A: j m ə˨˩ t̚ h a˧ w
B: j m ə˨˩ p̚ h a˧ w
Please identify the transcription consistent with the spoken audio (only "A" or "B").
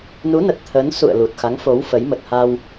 A